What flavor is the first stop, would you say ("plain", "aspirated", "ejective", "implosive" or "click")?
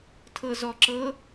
aspirated